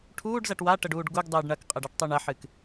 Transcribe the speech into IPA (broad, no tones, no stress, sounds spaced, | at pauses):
ʈʰ uː ɖ z ɐ ʈ w a ʈ ə ɖ uː ɖ ɡ u ɡ dˤ ɨː ɖ ɳ ɐ k qʼ ə ɖ a ʈ tˤ u ɳ ɐ ħ ɨ k